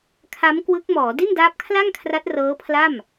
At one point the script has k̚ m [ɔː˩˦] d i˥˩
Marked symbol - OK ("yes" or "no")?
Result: yes